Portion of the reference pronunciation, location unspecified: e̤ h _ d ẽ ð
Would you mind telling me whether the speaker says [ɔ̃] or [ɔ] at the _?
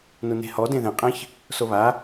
ɔ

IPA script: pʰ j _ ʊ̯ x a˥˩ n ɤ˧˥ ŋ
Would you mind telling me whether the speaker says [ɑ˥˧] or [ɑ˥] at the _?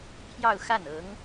ɑ˥˧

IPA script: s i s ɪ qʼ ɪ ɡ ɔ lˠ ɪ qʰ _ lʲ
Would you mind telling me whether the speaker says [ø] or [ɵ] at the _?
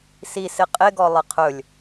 ɵ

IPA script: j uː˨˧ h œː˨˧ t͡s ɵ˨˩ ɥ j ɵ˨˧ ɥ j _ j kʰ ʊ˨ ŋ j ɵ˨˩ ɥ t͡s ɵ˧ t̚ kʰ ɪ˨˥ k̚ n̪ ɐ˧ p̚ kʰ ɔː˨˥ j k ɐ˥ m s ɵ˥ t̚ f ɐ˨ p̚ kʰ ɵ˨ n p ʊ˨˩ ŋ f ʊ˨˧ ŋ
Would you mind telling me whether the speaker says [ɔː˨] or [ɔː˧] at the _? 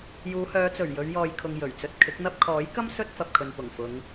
ɔː˨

